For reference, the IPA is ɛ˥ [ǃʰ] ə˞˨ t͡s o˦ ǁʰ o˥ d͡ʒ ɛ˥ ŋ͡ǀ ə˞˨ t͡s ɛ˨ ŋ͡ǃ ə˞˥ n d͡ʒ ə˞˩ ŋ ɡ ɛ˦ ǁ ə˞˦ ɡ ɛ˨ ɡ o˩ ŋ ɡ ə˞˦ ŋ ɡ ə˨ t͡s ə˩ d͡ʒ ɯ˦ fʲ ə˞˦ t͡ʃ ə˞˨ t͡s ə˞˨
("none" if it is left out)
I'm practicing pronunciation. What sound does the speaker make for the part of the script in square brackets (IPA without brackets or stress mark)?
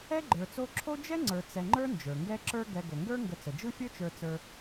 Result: ɡ͡ǃ